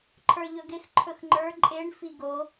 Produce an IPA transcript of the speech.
ǃʰ ə˞ ʎ ɵ ɡ ɪ x ǃʰ ɵ x ŋ͡ǃ ə˞ ǃʼ e ɳ f i ɡ o

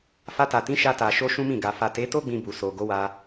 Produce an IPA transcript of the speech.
f a˧ t a˨ t ĩ˨˦ ʃ a˧ t a˨ ʃ o˧ ʃ ũ˦ m ĩ˦˨ ɡ a˧ f a˨ t e˨˦ t o˦ ɡ͡b ĩ˧ b u˨ s o˨ ɡ o˨˦ w a˦

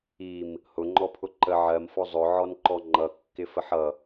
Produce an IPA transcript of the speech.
i m | h ʊ ŋ͡ǃ ɔ pʰ ʊ ǃ ə ʕ ɜ m f ɔ zˤ ʊ ʕ ɔ n ǃ ɔ ŋ͡ǃ ʌ kː ɪ f ə ħ ʌ

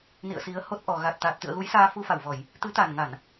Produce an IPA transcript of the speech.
n ḭ˧˨ ə̯ s i˨˦ ə̯ h o˦˥ t̚ ʔ ɔ˨˩ ɣ a˨˩ t̚ t̪ aː˨˩ t̚ t̪ ɨ̰˧˨ ə̯ ɣ u˨˦ j s aː˧ f u˧ f a˧˩ w v ɔ˧˩˨ j | t̪ ɨ˨˦ t̪ a˨˩ n ŋ a˧˩˨ n

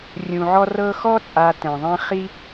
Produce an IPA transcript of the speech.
rʲ ũ˩ ʕ ɔ˦ r ɤ˦ x ɔ˥ t͡sʼ a˨ t ɛ̃˩ ðˤ ɛ̃˦ χ i˥

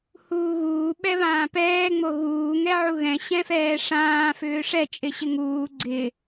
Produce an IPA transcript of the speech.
h uː ɣ uː ɓ ɛ β ãː p ɛː ŋ͡m o ɣ uː ŋ ɛ ʕ u ɣ ɛ̃ ɕ ɛ̃ f ɛː ʂ ãː f ʏː ʂ ɛ t͡ʃʼ ɪ ɕ ɪ ŋ uː ɡ͡ǀ ɪ

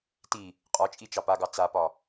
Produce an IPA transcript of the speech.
t i | qʼ ɒ t͡ʃʼ i t͡ʃ ɑ p a ɡ ɑ t͡s a p ɒ

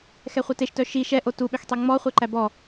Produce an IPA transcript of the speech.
x ɛ χʷ œ t e ʃ t œ ʃ i ʃ ɛ ʔ o t u ɓ ø x tˤ i ŋ͡m ɔ χʷ ɛ ǃ æ b ɔ

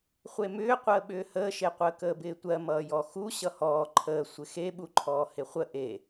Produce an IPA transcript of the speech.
χʷ e m ʏː qʷ əː ɓ ʏː h əː ʃ e qʷ əː k əː b ɪː tʷ ɜ m ʌː j ɔ x u ɕ ʌ h ɔː ǃʰ əː sʷ ɪ x e ɓ u ǃʰ ɔː h ɪ χʷ ə ʔ e

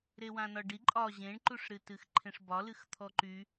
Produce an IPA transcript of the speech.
ɾ e w ã n ɒ ɖ i ǃʼ ɒ ʑ ẽ ɳ ǃ u ʂ ɾ ɨ t ɨ x ǃʰ ẽ ʂ b ɒ l ɨ x t̪ʰ ɔ ǃ y

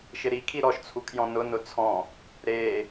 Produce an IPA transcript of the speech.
ʃ ɪ ɾ i kʰ i ɾ ɔ ʃ t͡sʰ u kʰ j ɔ̃ n ʊ n ʊ t͡sʰ ɔ̃ | ɾ e

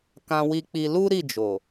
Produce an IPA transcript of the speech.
k ã˧ w i˧ k͡p i˧ l u˦ ɾ i˦˨ d͡ʒ o˨

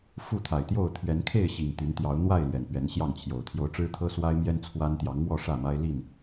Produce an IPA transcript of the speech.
f u˥˨ t̪ʰ a˨˩ ɪ̯ t̪ j o˥˨ ʊ̯ t̪ʰ ɥ ɛ˨˦ n kʰ e˥˨ ɪ̯ ɕ i˨˩ ŋ t̪ y˨˦ n t̪ j ɑ˨˦ ʊ̯ n̪ w a˥˨ ɪ̯ l ɥ ɛ˨˩ n p ɥ ɛ˨˦ n ɕ j ɑ˥˨ ŋ t͡ɕʰ j o˨˩ ʊ̯ t̪ʰ j o˨˦ ʊ̯ ʈ͡ʂ ɻ̩˦ t̪ʰ ɤ˦ s w a˦ ɪ̯ m j ɛ˦ n t͡sʰ w a˦ n t̪ j ɑ˨˦ ŋ m w ɔ˥˨ ʂ ä˥˨ m a˦ ɪ̯ l i˥˨ n

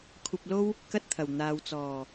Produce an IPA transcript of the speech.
kʷʰ ɐ˧ p̚ l o˥ w | k ɐ˥ t̚ t̪ʰ ɐ˨˩ w n̪ aː˨ w t͡s ɔː˨˩

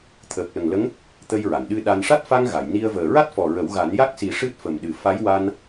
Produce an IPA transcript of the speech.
t̪ʰ əː˨˩ k̚ l ə˨˩ ŋ l ə˧˥ ŋ | t̪ ə˧ j ɹ a˨˩˨ n ɗ ɨ˧ ɗ a˧ n ʂ a˦˥ t̚ f a˧ ŋ ɣ a˨˩˨ j n i˧ ə̯ v əː˨˩ ɹ a˦˥ t̚ f ɔ˨˩ ɹ ə˨˩˦ w ɣ a˨˩˦ n j a˦˥ k̚ s i˨˩˦ ʂ ɨ˦˥ t̚ f ə˨˩ m ɗ ɨ˨˩ f a˧˥ j w a˧ n

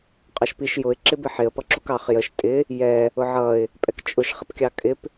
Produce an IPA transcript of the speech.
qʼ ɑ ʃ p i ʃ j ʊ ɪ̯ ǁ ɪ b ɪ ħ ɪ ə̯ p ʌ ǁ u k ɑ χ j ə ʃ tʼ ɪ | j ɛ | ʊ ʕ ʌ ɪ̯ | pʼ ɛ k t͡ʃʼ ʊ ʃ χ ɪ p kʲ ɑ kʼ ɪ p

